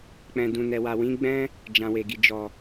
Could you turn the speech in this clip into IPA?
k͡p ɛ̃˨ d ũ˨ n ɛ˨ w a˨ w ĩ˨˦ ɡ͡b ɛ̃˦ | d͡ʒ ã˨ w e˨ ɡ i˨ d͡ʒ ɔ˨

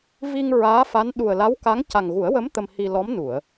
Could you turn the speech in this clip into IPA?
v i˧ ŋ ɹ aː˧˥ f a˧˥ n ɗ u˨˩ ə̯ l a˧˥ w k a˧˥ ŋ c a˨˩ ŋ ɣ u˨˩˦ ə̯ w ə˧˥ m t̪ ə˧ m h i˧ l ɔ˧˥ m n u˨˩˨ ə̯

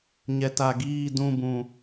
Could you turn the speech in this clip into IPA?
ɲ ɛ˨ t a˨ ɡ iː˦˨ d ũ˦˨ b ũ˨

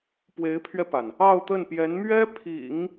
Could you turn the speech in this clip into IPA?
p w e˧˥ ɪ̯ pʰ ɥ ɛ˧ p a˩ n | ɑ˥˧ ʊ̯ t̪ ə˥˩ n p j ɛ˧˥ n m ɥ ɛ˥ pʰ ḭ˨˩˦ ŋ

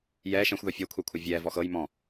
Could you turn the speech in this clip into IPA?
j ɛː ʃ ɛ̃ xʷ ð ɔ fʲ ɤ kʷʰ ɛ kʷʰ ɤ vʲ ɛː v ɔ x ɤ j m ɔ̃

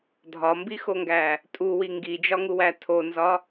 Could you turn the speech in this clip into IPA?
dʱ ɒ m b i x o ŋ ɡ æ | tʼ u w i ŋ ɡ i d͡ʒ ɒ ŋ u w æ tʰ o n z ɒ

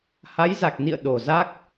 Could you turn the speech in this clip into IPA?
h a˨˦ j z a˨˩ k̚ n ḭ˧˨ ə̯ ɗ o˨˩ z a˦˥ k̚

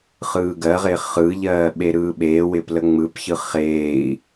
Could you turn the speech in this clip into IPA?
χ ɯː ɡ ɜ ʁ ɪ χ ɯ ʎ ɜː ɓ e ɾ ɯː ɓ eː w ɪː p l ə ŋ͡m ɯ p ç ɯ χ eː i̯

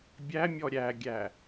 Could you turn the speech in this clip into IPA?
bʲ æ mʲ ɔ ɾʲ æ ɡʲ æ

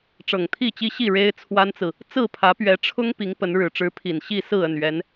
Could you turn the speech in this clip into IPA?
ʈ͡ʂ ɤ˨˩ ŋ t̪ʰ i˥˨ t͡ɕ i˦ ɕ i˥˨ ɻ e˦ ɪ̯ t͡sʰ w a˦ n t͡s ɹ̩˨ | t͡s ɹ̩˥˨ pʰ ä˨˦ p ɥ ɛ˨˦ ʈ͡ʂʰ ʊ˦ ŋ p i˨˦ ŋ p ə˨˦ n ɻ ɻ̩˨˩ ʈ͡ʂ ɻ̩˨˦ pʰ i˨˩ n ɕ i˥˨ s ɹ̩˥˨ ə˥˨ n ɥ ɛ˨˦ n

